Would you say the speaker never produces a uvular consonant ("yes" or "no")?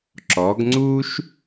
yes